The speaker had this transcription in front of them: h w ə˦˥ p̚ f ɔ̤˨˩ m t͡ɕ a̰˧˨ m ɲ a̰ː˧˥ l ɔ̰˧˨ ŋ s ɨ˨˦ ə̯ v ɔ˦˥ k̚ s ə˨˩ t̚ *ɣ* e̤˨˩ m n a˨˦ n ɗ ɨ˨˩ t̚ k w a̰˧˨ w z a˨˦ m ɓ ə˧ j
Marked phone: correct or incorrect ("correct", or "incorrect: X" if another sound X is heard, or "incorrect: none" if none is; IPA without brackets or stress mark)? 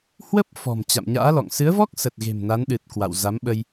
correct